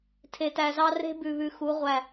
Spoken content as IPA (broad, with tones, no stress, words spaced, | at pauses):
tʰe˨tæ˨zɑ˦ re̤˦bʉ˨βʉ˨xu˨˦ ʁʷæ˦˨